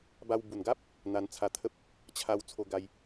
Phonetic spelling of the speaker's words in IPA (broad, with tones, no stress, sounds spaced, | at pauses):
b a˧ w b u˨˩ n ɡ a˦ p̚ | n̪ a˧ n t͡sʰ a˧ t̪ʰ ə˦ p̚ | t͡ɕʰ a˧ w t͡sʰ o˧ ɡ a˧ j